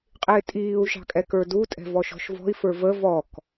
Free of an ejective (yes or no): no